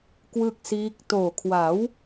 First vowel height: high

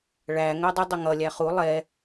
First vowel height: low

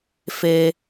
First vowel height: mid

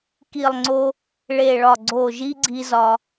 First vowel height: high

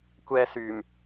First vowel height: mid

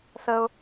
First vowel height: mid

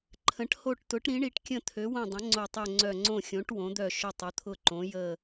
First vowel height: mid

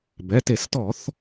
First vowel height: mid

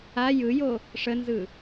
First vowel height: low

